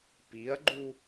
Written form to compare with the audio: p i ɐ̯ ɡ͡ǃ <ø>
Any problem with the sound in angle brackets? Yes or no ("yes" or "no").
yes